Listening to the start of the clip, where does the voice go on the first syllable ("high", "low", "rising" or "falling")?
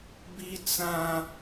high